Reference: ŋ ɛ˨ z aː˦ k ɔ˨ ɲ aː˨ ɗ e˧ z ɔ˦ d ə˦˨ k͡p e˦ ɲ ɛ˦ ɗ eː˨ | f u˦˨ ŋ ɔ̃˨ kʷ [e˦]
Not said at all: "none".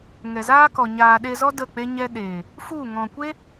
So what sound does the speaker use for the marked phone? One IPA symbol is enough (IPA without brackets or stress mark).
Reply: e˦